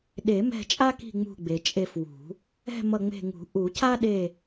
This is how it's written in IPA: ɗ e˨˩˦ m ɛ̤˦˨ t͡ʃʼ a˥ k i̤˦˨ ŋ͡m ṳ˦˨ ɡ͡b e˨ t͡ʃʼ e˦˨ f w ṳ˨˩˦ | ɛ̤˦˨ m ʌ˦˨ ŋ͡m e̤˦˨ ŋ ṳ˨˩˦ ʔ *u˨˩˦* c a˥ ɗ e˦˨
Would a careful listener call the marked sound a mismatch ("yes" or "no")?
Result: no